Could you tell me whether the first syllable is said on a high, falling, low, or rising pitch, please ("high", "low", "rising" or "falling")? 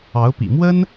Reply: rising